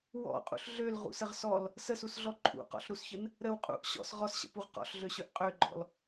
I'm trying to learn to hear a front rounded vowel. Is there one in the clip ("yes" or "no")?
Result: yes